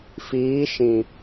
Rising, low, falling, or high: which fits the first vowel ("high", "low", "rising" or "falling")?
rising